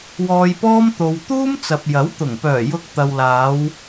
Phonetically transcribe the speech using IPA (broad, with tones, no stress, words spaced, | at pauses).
wɔː˧jpɔː˥m t̪o˨w t̪uː˥m t͡sɐ˨p̚jɐ˨˥wt̪ʊ˨˩ŋ pœː˨˩ jʊ˧k̚ t̪ɐ˨wlaː˨˧w